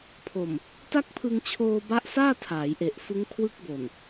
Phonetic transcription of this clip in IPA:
pʰ o˨˩ m | t a˥˩ k̚ pʰ ɯ˧ ŋ t͡ɕʰ oː˧ b a˦˥ ʔ s aː˥˩ tʰ aː˩˦ j ʔ e˨˩ ʔ f ɯ˦˥ ŋ kʰ w ɯ˦˥ k̚ b o˨˩ n

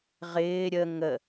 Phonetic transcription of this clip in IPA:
ʁ ɪː ɾʲ ə ŋ ə

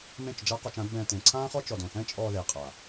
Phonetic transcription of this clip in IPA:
m ẽ˦˨ t͡ʃ d͡ʒ a˦ q ɔ˧ t͡ʃ ã˨˦ d b ɛ̃ː˧ t ẽ˨ ǀʰ ãː˦ χ ɔ˦ t͡ʃ ɔ˨ d õ˨ θ ɛ̃˦ t͡ʃʼ ɔː˧ ð e˨ qʼ a˨

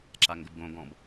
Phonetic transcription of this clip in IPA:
ǁ a ŋ ɡ ə b ɡ õ ɡ ɔ̃ b

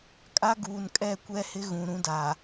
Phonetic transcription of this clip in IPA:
kʼ a˦ ɡ uː˨ n kʼ ɛ˦˨ kʷ ɛ˦ h ɪ˦ ɣ ũ˨ ɾ ũ˦ d a˨

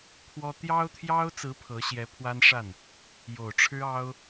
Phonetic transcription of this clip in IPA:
pʰ w ɔ˥ t̪ j ɑ˥ ʊ̯ t̪ʰ j ɑ˥ ʊ̯ t͡s ɹ̩˧˥ pʰ ɤ˧˥ ɕ j ɛ˧˥ pʰ w a˥ n ʂ a˥˩ n | j o˨˩ ʊ̯ ʈ͡ʂʰ ɻ̩˥ ɑ˥ ʊ̯

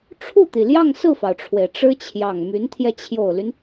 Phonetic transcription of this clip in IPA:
ʈ͡ʂʰ u˥˩ t̪ i˩ l j ɑ˥˧ ŋ s ɹ̩˥˩ f ɑ˩ ʊ̯ ʈ͡ʂʰ w e˩ ɪ̯ ʈ͡ʂ ɻ̩˥ t͡ɕʰ j ɑ˨˩ ŋ m y˧˥ n t̪ʰ j ɛ˧ t͡ɕʰ j o˨˩ ʊ̯ l y˦ n

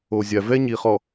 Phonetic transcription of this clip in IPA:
o˨ zʲ a˨ v ɛ˦ ɲ i˨ χ ɔ˨

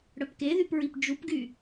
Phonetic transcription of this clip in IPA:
ɽ œ p k e ð y p ɹ i p d͡ʒ u p ɡ y

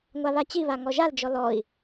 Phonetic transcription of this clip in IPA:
ŋʷ a β a t͡ɕ i β a ŋ ɔ ʒ a l d͡ʒ ɔ l ɔ i̯

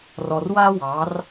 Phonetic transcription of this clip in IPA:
r ɔ˧ r w a˥ w ɑ˧˥ r

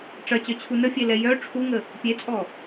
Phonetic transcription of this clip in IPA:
ʈ͡ʂ ɐ t͡ɕ œ t͡ɕʰ u n ə fʲ e l ɛ j œ ʈ͡ʂʰ u ŋ ə | pʲ e t͡sʼ ɔ

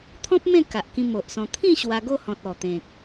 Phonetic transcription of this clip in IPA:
t̪ʰ ɔ̃˦ p̚ m ẽ˥˧ k a˨ ʔ k ĩ˧ m o˨ ʔ s ɔ̃˧ t̪ʰ ĩ˥˧ ɕ w a˧ ɡ o˥˧ h ɔ̃˨ t̚ ɔ˨˩ t̪ ẽ˨ k̚

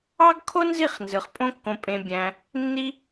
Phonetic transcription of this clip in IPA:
ɑ˦ ɡ kʰ o˦ n z i˦˨ χ n z ɯ˨ χ pʼ õ˦ kː õ˧ pʼ ẽ˧ bʲ æ̃˧ | nː i˦

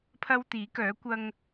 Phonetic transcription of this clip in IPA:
pʰ ɐ˥ w t̪ iː˨˥ k œː˨˥ kʷ ɐ˧ ŋ

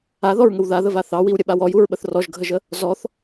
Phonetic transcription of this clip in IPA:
a ð ɔ ɹ ŋ ə w ð a ð ə v a θ ɑ w i w ɾʲ ə ɓ a w ɔ j u ɹ ɓ ə θ r ɔ ʒ ɡʱ ə ʒ ə | z ɔ θ

